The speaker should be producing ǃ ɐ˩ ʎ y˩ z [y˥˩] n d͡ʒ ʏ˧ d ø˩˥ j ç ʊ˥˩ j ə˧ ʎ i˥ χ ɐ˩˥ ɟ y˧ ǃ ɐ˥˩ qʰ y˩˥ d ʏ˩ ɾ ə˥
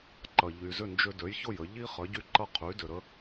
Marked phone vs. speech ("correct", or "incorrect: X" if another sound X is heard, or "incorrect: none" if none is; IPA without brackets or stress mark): incorrect: ʏ˥˩